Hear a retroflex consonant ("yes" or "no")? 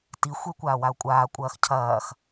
no